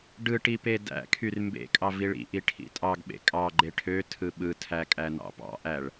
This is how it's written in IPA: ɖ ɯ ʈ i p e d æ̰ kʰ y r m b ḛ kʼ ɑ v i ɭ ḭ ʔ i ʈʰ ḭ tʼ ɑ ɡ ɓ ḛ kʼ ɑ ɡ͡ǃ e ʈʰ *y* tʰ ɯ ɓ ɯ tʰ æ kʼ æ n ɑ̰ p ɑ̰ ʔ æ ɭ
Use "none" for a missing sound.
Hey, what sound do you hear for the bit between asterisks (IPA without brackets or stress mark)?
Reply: ø